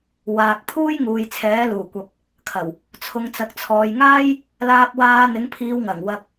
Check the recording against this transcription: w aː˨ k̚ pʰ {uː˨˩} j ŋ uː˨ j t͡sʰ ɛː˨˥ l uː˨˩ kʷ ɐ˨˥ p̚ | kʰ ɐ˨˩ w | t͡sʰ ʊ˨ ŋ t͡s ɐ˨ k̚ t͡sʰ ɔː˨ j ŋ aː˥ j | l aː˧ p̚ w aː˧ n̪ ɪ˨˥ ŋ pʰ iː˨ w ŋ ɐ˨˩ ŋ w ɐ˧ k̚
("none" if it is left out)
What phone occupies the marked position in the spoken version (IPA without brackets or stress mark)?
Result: uː˥